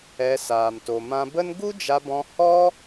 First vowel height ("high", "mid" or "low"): mid